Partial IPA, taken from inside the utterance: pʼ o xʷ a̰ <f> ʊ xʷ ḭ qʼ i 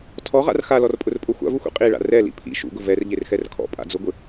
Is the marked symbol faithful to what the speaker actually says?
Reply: no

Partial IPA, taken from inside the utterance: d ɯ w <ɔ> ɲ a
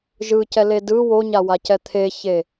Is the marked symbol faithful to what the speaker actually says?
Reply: no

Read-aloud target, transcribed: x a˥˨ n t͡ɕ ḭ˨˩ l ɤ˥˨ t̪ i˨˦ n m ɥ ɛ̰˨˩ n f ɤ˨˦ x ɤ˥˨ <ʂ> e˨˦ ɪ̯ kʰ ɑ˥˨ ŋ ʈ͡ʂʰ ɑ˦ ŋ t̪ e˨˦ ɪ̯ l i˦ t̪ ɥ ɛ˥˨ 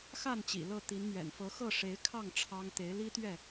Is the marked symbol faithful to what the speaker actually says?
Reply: yes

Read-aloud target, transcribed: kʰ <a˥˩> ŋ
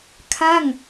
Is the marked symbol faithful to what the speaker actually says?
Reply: yes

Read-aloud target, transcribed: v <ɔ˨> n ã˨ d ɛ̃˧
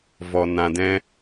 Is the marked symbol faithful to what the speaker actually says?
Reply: yes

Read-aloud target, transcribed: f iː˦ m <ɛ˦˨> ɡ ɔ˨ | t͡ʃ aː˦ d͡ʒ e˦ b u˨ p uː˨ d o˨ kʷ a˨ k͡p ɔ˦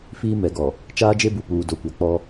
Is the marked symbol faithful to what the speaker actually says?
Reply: no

